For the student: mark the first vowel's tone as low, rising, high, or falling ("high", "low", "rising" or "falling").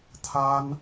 high